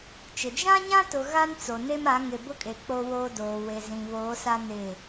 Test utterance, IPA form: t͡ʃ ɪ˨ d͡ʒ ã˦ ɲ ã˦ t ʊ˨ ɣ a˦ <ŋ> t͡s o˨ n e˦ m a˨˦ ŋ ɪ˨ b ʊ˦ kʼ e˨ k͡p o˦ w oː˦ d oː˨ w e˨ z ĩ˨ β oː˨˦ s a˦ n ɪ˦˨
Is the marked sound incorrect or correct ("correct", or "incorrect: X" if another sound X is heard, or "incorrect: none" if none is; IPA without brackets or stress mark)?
incorrect: n